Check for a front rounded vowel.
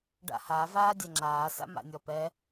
absent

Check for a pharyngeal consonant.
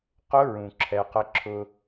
absent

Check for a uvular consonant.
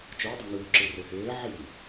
absent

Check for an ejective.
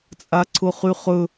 present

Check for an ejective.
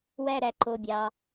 absent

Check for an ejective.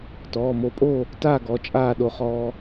present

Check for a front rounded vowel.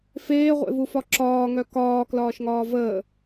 present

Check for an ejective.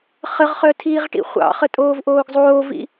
present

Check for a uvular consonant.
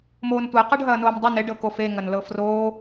present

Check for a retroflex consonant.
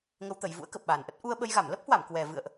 absent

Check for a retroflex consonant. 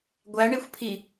present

